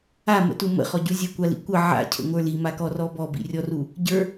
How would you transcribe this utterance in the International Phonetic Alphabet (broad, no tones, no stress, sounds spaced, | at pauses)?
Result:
a m ə̰ t u m ə̰ χ ɔ ɟ u zʲ ə kʷ a l ḭ kʷ ə ʕ a̰ cʰ ə̰ ŋʷ ə˞ l i m a k ɔ r ɔ b ɔ b ḭ rʲ ɔ r u | ɟ ə˞